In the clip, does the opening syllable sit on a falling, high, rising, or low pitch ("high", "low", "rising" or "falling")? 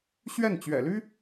falling